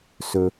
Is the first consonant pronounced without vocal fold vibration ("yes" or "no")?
yes